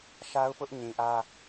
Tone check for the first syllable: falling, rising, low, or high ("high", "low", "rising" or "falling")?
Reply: high